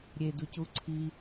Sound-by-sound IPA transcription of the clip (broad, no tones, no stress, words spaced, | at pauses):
ɾʲeducu ǀʰi